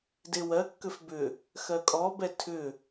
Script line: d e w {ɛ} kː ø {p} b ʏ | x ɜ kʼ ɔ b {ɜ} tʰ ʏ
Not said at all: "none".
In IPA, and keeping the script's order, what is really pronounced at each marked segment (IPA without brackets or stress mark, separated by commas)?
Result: ɜ, f, ɛ